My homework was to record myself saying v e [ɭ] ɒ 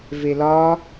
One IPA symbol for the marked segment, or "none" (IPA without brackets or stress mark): l